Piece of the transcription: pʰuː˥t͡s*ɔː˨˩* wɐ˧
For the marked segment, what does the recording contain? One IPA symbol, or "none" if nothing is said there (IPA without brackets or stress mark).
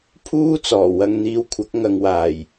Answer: ɔː˨˩